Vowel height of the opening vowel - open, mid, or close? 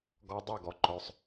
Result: mid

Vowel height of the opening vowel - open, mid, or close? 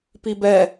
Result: close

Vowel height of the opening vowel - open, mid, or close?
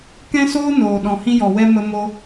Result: mid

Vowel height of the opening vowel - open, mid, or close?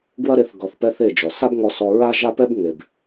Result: open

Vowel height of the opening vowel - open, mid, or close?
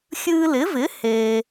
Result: close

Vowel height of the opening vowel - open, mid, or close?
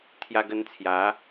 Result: open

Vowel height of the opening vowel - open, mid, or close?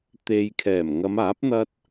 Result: mid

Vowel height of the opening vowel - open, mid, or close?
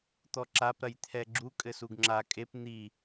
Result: mid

